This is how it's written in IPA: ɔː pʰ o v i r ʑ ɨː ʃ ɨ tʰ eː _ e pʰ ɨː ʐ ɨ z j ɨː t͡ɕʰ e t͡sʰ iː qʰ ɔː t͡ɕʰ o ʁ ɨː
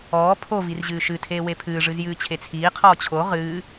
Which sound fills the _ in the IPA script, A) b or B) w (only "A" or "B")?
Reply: B